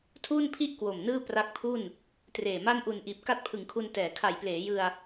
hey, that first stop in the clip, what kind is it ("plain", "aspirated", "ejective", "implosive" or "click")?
aspirated